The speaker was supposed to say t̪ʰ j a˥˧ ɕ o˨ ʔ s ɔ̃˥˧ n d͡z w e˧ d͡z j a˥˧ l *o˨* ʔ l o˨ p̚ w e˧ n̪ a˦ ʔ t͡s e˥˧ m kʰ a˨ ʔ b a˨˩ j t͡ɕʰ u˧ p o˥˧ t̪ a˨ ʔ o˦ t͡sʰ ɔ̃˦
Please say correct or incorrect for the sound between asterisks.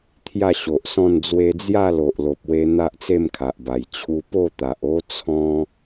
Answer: correct